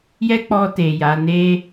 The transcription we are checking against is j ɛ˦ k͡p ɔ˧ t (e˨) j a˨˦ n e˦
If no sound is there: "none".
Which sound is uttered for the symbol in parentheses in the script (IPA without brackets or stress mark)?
e˨